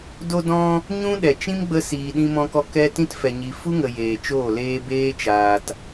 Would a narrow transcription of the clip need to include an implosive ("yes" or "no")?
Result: yes